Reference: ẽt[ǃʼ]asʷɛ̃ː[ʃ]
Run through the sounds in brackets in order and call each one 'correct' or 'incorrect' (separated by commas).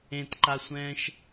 incorrect, correct